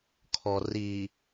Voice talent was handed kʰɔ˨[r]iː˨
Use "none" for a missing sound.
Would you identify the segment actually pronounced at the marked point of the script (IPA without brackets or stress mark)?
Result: r